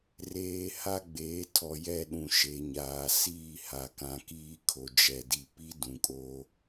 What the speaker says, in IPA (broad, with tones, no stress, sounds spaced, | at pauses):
r eː˨ h a˦ ɡ͡b eː˨˦ tʰ ɔ˨ j ɛ˦˨ ɗ ũ˨ ʃ e˨ ɲ aː˨ s iː˦˨ h a˨ k ã˨ k iː˦ kʰ o˨ d͡ʒ ɛ˨ d i˨ p i˦ d ũ˨ kʼ oː˦